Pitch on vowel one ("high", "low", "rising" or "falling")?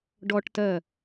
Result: high